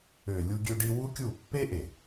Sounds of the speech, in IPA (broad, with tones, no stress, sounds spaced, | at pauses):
ø˨ lʲ u˧ ɡʲ ø˧ ɖ i˧ w u˦ kʲ u˦˨ pː e˦ ʔ e˨